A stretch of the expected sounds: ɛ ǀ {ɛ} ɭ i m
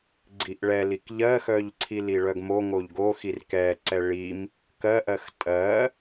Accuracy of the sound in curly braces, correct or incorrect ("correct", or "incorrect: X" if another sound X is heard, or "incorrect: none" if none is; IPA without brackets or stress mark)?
correct